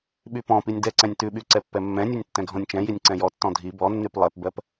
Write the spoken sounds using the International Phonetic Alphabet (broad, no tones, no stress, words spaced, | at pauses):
ɓypɔ̃pinʲ dɛǀɛ̃nʲ tʉɓy ǀɛpːɛmːɛ̃nʲʉnʲ tːɛ̃ɡʱɔ̃nʲt͡ʃɛ̃jinʲ ǀɛ̃jɔtːɔ̃ dʱi bɔnːyp lˠɛpbɜp